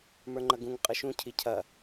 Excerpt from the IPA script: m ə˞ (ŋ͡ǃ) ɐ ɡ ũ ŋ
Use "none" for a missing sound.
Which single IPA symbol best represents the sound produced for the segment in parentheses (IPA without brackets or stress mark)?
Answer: ŋ͡ǃ